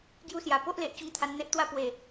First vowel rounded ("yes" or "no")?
yes